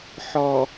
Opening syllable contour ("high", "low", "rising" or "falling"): low